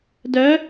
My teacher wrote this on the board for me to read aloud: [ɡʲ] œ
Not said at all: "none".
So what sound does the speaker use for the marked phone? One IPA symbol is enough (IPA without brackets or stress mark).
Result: d